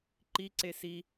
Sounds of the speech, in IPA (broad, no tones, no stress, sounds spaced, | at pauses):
ǃ i ǀ e s i